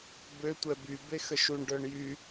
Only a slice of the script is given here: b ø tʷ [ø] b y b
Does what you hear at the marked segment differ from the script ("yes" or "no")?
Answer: yes